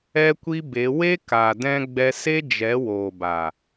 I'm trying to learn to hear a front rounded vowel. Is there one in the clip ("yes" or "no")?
no